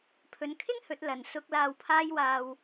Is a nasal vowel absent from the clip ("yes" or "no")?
yes